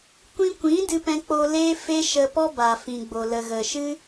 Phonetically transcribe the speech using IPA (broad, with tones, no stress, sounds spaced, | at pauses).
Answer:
kʷ ĩ˧ kʷ ĩ˨˦ d ɨ˧ p ɛ̃˧ k͡p o˧ l e˦ f e˦ ʃ ə˧ p ɔ˦ b a˨ f ĩ˨ ɡ͡b o˨ l ə˨ ɣ ə˨ ʃ ɨ˦